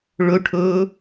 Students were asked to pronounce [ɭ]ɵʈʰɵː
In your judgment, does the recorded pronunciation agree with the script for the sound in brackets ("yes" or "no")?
yes